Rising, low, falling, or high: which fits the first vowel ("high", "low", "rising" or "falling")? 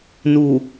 low